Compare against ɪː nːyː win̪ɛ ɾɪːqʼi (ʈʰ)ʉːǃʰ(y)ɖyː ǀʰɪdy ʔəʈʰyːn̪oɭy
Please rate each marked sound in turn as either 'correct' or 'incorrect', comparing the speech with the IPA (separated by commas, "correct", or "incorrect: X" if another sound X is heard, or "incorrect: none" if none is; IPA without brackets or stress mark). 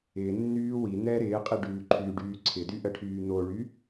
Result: incorrect: ɖ, correct